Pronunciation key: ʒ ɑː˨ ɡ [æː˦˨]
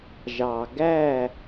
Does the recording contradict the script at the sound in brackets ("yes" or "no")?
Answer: no